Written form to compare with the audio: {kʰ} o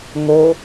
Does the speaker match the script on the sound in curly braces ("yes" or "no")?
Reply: no